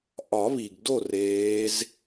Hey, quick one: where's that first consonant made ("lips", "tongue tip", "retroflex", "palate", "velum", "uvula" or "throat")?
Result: throat